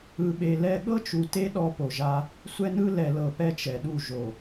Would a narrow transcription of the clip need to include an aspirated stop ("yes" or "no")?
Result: no